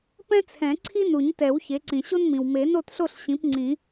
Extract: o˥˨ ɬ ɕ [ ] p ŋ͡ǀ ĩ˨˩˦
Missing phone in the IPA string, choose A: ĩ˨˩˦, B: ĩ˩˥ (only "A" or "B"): B